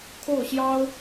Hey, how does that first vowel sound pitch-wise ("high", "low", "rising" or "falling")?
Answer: falling